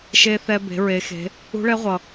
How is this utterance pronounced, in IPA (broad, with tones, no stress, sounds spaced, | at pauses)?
ʃ e˧ θ ɛ˧ b e̤˩˧ ɹ e˩˧ x e̤˩˧ | ṳ˧˥ ɭ ɛ˧˥ ʁʷ ʌ˩